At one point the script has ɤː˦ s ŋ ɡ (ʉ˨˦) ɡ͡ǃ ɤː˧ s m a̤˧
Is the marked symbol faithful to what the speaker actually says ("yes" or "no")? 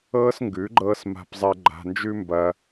yes